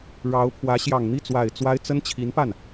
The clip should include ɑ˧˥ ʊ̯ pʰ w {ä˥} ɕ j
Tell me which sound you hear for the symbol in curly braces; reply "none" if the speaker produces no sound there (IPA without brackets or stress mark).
ä˧˥